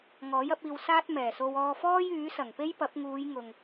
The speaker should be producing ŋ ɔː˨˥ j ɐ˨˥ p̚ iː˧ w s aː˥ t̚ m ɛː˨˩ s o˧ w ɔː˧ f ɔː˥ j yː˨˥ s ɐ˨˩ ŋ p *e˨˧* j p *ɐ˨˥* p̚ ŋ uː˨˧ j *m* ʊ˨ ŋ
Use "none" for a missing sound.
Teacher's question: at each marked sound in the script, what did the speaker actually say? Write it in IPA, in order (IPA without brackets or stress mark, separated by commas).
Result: e˥, ɐ˨˥, ŋ